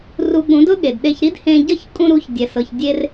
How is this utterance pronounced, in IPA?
ru˧ɠũ˩˥dʊ˥ ɠe˩dɗe˧çɾi˥d hẽ˧ɟʌ˥˩ç kʼũ˧ɾu˩˥çdʲɛ˩sɤ˩ç dʲe˧r

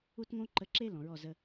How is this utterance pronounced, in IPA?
u˦tŋõ˦ǃə˧ǁe˦ lɔ̃˨ ɹɔ˦˨zə˦

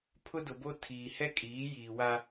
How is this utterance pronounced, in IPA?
pʰʊ˦dʊ˨bo˦ tʰiː˨hɛ˦kʼiː˨˦jiː˨ wa˦

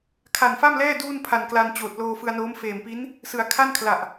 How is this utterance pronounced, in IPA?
kʰa˨˩nfa˥˩mlɛː˥˩ duː˥˩npʰa˨˩nkla˧n t͡ɕoː˨˩t̚loː˧fɯ˧a̯noː˦˥m feː˨˩mpi˦˥n | sɯ˩˦a̯ kʰa˥˩nkʰla˨˩ʔ

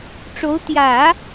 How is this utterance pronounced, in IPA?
ʈ͡ʂo˧˥ʊ̯ t̪jä˨˩˦

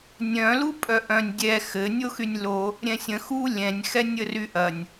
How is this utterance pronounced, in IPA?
nʲœ̃ lupʼœʔœ̃nʲ dʲɛ xɘ nʲoxynʲlo | ɾʲɛ̃sʲə̃ xu lʲɛ̃nʲ xɛnʲəryʔɐnʲ

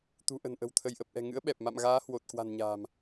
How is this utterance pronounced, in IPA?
t̪ṳ˨˩ʔə̤˨˩nʔə̤˨˩w t̪ʰə˧˩jʔə˨˩p̚ʔɛ̤˨˩ŋɨ̰˧˥ə̯ ɓɛ˨˩p̚ma̰˧˨mɣaː˨˦ hwo˨˩t̚kwa̤˨˩nɲa̤ː˨˩m

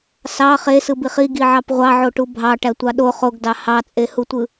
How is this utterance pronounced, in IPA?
sɑ χesɯbiχ iɡiʕɑp ʁʷɑʕoʈu bʱɑʈætʷɑ ɗo χoɡdɑ hɑt͡sʼehutʷɯ

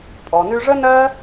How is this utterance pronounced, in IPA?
pʼɔ˩nʉ˧ʐə˥ nɜ˥

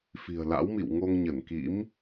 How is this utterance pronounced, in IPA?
fi̤˨˩ə̯la̰˧˥wmḭ˧˨wŋo˧ŋ ɲə˧˩nkḭ˧˥m

